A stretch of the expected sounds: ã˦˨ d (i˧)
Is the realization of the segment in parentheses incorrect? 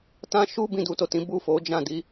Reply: no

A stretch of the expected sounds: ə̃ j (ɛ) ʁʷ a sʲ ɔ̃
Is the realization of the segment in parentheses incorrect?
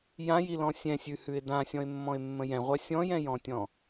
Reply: yes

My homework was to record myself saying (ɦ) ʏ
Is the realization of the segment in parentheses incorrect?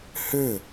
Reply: yes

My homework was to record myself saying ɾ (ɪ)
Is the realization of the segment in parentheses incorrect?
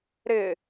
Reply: no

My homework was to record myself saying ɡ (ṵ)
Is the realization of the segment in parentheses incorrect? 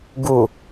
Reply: yes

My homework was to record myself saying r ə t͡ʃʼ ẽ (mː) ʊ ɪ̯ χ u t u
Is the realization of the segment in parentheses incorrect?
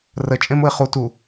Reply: yes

